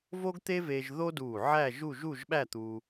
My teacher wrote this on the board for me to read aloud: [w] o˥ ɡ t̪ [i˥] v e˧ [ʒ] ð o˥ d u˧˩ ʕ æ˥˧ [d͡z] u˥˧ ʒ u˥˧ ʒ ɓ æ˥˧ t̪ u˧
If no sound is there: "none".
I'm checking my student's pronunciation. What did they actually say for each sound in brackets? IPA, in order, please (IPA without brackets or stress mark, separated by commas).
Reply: v, e˥, ʒ, ʒ